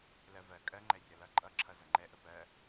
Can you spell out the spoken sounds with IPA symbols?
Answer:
l ɜ v ɜ kʼ ɜ ŋ͡ǃ ɛ rʲ ʌ l ʌ ǃʼ ʌ ǁʰ ʌ z ʌ ŋ͡ǃ ɛ ʔ ə p ɜ

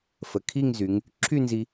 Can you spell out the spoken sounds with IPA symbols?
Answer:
f ə˩˧ kʰ i˥˧ ŋ z y˩˧ ŋ | ǁʰ y˥˧ n z i˧

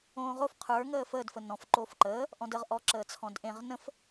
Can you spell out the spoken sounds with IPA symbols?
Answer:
õː ʁ o f qʰ ə˞ ŋ əː f əː d f ə n ɔ̃ f ǃ oː f ǃ əː | ʔ ɔ̃ d ə ʁ ʔ ɔ ǁ əː t͡sʰ ɔ̃ d ʔ ẽ ʁ n ə̃ f

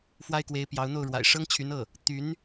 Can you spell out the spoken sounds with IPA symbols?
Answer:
f w a˥ ɪ̯ k w e˧˥ ɪ̯ p j ɑ˧˥ ʊ̯ n̪ o˥˩ ʊ̯ ɻ w a̰˨˩ ɪ̯ ʂ ɤ˥ ŋ t͡ɕʰ y˧˥ n ɤ˥˩ | t̪ y˧˥ n

